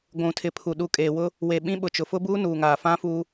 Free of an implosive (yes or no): no